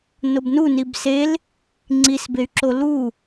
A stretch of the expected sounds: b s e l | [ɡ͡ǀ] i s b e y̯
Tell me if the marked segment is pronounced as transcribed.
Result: no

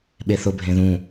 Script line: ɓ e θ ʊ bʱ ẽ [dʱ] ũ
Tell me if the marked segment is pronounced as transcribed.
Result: no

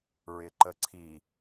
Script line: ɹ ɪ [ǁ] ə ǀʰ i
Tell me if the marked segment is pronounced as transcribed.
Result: no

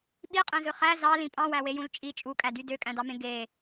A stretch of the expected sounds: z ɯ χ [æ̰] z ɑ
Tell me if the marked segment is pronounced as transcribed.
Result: no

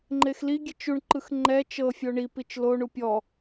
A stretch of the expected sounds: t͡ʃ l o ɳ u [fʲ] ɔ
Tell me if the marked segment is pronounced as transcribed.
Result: no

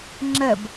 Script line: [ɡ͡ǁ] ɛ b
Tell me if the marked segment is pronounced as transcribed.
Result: no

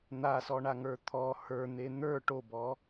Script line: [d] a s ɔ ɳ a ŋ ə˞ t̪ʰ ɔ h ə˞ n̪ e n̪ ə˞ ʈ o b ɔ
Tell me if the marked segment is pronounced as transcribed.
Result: no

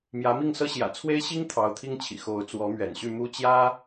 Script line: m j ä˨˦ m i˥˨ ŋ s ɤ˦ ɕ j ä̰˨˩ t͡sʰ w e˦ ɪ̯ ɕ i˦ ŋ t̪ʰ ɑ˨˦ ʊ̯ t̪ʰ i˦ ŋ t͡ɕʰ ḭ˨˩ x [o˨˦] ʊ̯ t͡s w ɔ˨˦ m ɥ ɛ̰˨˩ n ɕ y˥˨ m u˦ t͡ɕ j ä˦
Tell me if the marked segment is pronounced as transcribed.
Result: yes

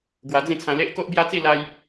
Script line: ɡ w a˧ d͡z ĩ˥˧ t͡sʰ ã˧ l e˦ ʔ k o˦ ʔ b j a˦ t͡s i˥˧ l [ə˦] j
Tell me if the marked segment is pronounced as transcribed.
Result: no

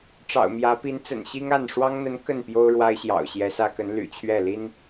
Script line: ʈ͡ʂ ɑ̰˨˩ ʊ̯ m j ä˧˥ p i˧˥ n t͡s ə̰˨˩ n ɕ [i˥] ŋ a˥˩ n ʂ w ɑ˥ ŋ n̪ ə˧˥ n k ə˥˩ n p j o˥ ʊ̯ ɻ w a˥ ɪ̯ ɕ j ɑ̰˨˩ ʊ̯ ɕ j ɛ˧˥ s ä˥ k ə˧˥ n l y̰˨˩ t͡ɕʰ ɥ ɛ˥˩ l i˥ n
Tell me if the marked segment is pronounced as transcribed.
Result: yes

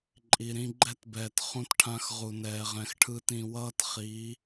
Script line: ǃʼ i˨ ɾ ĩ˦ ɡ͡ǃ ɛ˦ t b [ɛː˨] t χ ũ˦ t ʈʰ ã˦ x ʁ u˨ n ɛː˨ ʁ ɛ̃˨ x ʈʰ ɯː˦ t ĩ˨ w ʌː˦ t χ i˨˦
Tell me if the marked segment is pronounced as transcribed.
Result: yes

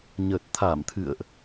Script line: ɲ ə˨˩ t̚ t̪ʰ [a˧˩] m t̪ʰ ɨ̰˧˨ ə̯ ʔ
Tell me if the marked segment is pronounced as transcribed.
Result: yes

